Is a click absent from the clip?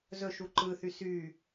no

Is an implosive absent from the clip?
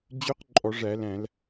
yes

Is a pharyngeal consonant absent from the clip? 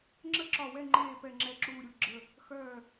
yes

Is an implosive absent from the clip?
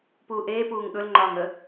no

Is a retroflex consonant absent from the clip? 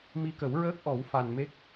yes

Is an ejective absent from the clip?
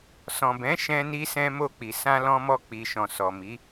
yes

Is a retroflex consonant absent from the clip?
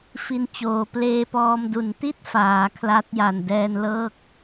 yes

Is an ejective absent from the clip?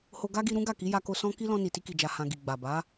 yes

